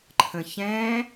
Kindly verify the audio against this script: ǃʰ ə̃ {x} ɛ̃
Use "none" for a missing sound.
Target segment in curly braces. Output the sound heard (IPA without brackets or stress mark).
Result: ç